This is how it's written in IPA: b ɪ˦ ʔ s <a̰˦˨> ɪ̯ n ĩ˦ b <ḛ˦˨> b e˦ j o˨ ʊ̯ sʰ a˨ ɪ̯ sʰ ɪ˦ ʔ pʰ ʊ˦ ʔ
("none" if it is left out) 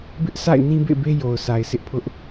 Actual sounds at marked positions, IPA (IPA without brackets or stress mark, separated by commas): a̰˦˨, ḛ˦˨